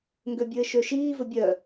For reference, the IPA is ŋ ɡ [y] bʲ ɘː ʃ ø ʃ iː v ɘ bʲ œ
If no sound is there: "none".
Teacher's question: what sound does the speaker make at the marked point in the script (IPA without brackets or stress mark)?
ø